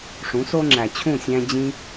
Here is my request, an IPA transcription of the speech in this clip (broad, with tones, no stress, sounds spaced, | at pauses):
ʂ ũ˩˥ s o˥ ŋ͡ǁ æ˩ t͡ɕʰ ũ˥˩ sʲ æ̃˧ d͡ʑ ĩ˧